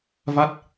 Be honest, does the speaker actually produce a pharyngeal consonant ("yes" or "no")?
no